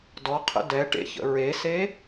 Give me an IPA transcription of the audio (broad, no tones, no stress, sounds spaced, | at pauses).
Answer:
d ɔ qʰ ə̰ d ɛ ʈ ḛ ç ə̰ ɹ e s e